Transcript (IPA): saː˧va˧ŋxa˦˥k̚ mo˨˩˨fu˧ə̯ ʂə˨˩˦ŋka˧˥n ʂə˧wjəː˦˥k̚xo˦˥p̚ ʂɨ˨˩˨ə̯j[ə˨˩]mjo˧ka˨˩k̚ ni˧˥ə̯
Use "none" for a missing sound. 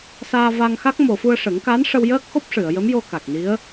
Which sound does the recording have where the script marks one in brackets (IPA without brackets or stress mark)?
ə˧˥